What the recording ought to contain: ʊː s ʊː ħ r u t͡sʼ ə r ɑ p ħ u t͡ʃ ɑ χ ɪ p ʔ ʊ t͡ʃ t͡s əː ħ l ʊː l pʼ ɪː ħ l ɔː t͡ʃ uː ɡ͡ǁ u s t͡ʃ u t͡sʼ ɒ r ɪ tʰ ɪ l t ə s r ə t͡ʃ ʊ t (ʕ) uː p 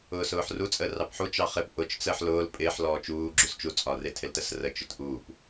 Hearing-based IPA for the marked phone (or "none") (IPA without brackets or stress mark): ʔ